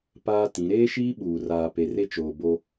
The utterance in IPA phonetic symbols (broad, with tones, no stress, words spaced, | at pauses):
paː˦tĩ˨˦ ɾeː˦ʃiː˦ɓuː˨ raː˨pe˨re˦t͡ʃoː˨ bo˦